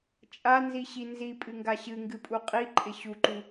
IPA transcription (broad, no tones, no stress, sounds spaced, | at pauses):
t͡ʃʼ a n z i ɕ i n z i pʼ ɨ ŋ ɡ a ɕ ɨ ŋ ɡ ɨ pʼ u qʼ i ǃʼ ɪ ɕ u ǃ u